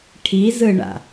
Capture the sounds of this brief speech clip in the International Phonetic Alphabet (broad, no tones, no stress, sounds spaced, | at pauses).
ʈʰ i z ɯ ɳ a̰